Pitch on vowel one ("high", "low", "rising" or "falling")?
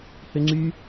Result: high